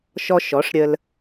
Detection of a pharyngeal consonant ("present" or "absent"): absent